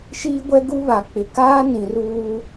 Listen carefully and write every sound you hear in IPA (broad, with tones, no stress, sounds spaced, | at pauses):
ʃ iː˦ ɡʷ ɛ˦ ɡ u˦ β a˨ k͡p ɪ˨ k aː˦ n ĩ˨ r uː˦